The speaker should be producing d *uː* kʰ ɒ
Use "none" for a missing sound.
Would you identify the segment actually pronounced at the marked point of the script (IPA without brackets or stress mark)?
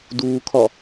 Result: uː